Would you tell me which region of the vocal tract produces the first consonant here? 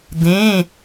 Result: tongue tip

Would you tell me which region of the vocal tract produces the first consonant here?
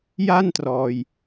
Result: palate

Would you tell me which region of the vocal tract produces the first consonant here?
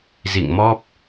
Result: tongue tip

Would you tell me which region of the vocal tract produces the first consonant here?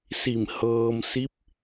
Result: tongue tip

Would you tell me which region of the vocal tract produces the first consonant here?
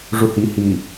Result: retroflex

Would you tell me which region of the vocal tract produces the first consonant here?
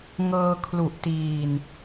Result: velum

